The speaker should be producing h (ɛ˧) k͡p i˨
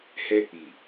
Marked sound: correct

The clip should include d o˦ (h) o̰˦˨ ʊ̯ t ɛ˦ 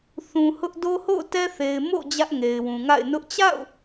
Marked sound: correct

